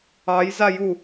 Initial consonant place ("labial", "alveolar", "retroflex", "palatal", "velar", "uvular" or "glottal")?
palatal